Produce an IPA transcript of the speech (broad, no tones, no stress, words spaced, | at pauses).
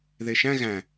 ðeʃæ̃ ɣæ̃